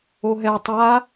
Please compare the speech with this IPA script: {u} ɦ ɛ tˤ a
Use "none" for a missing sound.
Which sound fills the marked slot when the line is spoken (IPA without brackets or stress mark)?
o